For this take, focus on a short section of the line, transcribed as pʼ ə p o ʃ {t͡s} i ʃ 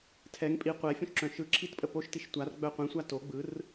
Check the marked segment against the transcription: incorrect: t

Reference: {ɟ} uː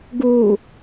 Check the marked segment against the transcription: incorrect: ɡ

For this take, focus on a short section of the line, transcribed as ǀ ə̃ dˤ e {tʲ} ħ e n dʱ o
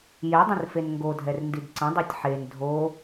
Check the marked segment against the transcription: correct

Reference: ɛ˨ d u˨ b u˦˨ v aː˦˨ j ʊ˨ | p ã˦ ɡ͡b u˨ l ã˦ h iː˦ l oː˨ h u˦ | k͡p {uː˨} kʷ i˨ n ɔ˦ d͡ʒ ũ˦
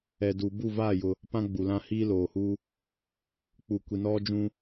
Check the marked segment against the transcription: incorrect: u˨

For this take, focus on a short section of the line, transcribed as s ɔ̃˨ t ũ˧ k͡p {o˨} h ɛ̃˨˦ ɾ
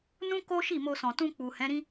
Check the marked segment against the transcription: incorrect: u˨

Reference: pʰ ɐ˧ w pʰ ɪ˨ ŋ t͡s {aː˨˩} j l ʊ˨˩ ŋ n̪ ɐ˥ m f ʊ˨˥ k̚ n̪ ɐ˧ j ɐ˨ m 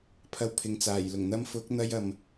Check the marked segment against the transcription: correct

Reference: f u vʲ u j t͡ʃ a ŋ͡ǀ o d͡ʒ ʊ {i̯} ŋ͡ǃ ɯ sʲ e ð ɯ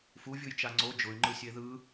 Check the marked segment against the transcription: incorrect: y̯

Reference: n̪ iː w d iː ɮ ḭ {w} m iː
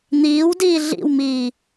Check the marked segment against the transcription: correct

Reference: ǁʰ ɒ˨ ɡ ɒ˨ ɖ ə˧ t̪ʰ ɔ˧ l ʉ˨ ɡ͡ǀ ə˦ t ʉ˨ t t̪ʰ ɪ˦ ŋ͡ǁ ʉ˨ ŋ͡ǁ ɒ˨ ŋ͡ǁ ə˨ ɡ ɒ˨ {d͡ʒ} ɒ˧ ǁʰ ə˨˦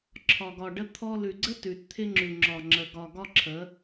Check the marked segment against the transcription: incorrect: ɡ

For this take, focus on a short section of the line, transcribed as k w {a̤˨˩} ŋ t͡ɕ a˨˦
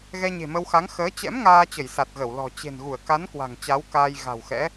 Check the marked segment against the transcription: correct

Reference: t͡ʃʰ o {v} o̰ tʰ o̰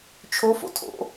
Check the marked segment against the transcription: incorrect: f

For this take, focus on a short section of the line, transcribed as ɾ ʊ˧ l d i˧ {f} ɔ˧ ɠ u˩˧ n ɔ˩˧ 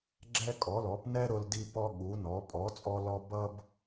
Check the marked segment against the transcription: incorrect: p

